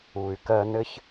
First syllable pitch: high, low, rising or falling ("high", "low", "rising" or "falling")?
low